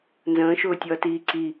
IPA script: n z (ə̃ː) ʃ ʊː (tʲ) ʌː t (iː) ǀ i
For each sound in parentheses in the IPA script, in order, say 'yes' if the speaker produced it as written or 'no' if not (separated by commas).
yes, yes, yes